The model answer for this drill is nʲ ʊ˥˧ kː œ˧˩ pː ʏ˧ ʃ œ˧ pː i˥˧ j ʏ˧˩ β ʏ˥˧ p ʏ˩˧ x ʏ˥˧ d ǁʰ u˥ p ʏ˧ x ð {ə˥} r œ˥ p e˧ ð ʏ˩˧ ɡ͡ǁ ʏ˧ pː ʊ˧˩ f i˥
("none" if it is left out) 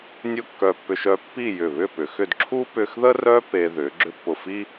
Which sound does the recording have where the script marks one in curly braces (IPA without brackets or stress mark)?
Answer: ə˥